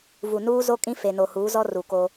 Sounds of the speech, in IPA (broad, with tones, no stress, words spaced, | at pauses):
vu˨nuː˦zo˦ kʼĩ˦fe˨ no˨huː˨˦zɔ˦ ru˨ko˦